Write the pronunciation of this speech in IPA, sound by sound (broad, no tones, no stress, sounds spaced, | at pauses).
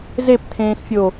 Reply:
z e p t̪ʰ ẽː x fʲ o